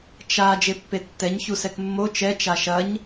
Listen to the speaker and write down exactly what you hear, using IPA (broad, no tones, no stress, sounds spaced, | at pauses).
t͡ʃ a d͡ʒ e pː e tː ɛ ɲ ç u s ɛ k mː o t͡ʃ ɛ t͡ʃ a ʃ ɐ ɲ